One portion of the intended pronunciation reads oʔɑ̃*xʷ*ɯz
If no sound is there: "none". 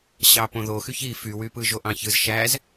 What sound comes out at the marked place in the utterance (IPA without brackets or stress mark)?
ç